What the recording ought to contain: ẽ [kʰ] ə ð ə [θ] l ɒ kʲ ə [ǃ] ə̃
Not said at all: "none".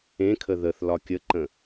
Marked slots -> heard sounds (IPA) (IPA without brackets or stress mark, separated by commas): kʰ, θ, ǃ